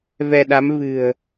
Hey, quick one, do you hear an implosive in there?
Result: yes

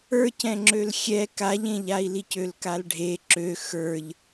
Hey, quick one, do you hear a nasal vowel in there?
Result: yes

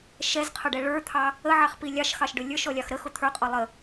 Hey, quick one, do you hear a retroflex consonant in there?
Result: yes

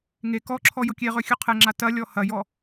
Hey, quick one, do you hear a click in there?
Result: yes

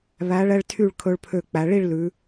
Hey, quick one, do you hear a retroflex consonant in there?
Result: yes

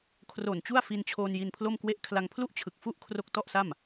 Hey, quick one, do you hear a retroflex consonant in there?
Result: no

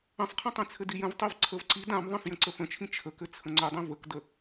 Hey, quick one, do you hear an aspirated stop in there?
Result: yes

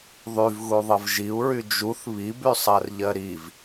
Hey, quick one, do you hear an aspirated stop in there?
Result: no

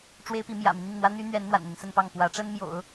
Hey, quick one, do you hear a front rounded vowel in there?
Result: yes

